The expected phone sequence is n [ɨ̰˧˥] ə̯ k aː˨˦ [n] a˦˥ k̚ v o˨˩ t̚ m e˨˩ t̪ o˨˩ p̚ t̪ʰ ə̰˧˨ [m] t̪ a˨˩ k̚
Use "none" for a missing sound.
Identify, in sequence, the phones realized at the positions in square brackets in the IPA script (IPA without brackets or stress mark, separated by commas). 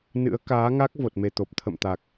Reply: ɨ̰˧˥, ŋ, m